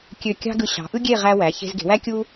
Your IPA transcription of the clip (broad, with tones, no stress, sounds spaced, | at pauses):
kʲ ø˧˩ kʲ ɑ̤˥ ɡ ɯ˧ ɕ ɑ̤˩˧ ʔ ɯ˥ ɡʲ e˥˧ ʁ æ˧ w æ˩˧ ç e̤˧ z ɡ e̤˩˧ w æ˥ kʲ u˥